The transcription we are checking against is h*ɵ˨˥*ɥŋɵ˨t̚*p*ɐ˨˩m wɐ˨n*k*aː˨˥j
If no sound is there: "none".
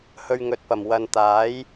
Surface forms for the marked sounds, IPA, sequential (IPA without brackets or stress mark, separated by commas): ɵ˧, p, t̪